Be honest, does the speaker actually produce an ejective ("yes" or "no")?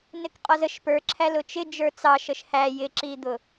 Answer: yes